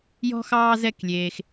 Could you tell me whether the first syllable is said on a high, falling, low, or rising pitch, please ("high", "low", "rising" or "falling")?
high